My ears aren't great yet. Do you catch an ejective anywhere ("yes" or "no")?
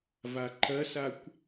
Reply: no